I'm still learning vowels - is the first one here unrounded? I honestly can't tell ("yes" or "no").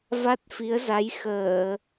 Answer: yes